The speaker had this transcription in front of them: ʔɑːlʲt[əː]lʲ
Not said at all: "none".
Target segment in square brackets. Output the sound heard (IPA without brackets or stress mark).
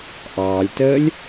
əː